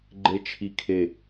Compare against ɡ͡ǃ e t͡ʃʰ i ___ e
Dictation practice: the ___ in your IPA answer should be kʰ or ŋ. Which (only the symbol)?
kʰ